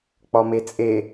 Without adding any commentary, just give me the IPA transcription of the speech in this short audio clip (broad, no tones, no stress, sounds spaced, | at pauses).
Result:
k͡p ɒ m e t͡sʼ e